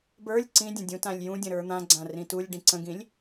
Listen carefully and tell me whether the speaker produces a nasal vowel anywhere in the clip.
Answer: yes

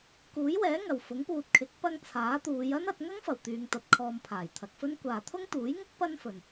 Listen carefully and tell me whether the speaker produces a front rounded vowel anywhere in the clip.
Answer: yes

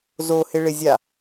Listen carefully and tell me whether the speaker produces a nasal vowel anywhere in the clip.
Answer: no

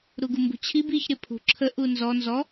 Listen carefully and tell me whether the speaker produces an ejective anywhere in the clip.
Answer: no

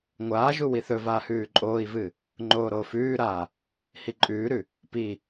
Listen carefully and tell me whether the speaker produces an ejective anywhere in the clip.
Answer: yes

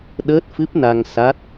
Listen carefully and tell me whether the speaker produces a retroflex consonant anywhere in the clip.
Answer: no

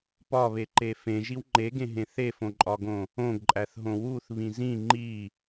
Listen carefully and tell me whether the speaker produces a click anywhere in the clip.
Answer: yes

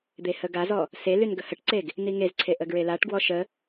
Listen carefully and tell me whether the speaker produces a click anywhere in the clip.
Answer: yes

